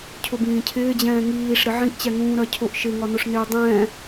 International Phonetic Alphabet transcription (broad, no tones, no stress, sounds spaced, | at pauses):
cʰ ʊ b ĩː cʰ ɪː d͡ʑ ɛ̃ː ŋ iː ʂ ɾ ɪ ʕ ĩ ʔ t͡ɕ ɛ ŋ ũː ɾ ɜ cʰ ʊ ʔ ʃ ɪ ŋ ɒ n ʊ ʂ n ɪː dˤ ɛ̃ː